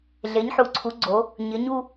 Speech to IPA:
ɮe˩˥ɲħu˩˥ǀʰu˩˥ ɡ͡ǀo˩˥ | ɲɪ˩˥ɲu˥˧

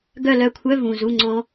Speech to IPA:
ɡœ˦˨lœ˦˨kʷʰœ˧˥˧ vũ˨˩ zu˧˥˧ŋ͡ǀɔ̃˦˥

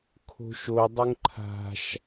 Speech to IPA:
kʰo̤ʃodˤʊŋ ǃʰa̤ʃ

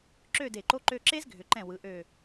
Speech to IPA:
ǁø˥˧ de˧˩ǃo˥ ǃø˧ǁe˥zɡʱʏ˩˧ǃɛ̃˧˩ wɯ˩˧ʔø˧˩

